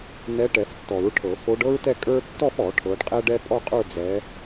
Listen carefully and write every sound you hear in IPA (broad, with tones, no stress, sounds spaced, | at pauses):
n ɛ˨˦ ʈ ɛ˨˩˦ f tː ɔ˨˩˦ ɹ ʈʰ ɤ˨˩˦ f o˨˦ ɖ ɤ˥ ɹ t ɛ˥˧ kʼ ə˞˥ tː ɔ˥˧ f ɔ˨˩˦ ʈʰ ɤ˨˦ ɖ qʼ ɛ˥ ɖ ɛ˥ pʼ ɔ˥˧ qʼ ə˞˥˧ d͡z ɛ˨˦